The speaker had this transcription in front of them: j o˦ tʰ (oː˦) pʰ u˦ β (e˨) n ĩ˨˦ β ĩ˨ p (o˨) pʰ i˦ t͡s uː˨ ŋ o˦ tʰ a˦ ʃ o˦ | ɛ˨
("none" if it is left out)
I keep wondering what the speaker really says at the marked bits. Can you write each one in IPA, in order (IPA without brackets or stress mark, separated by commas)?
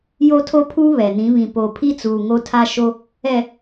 o˦, ɛ˨, o˨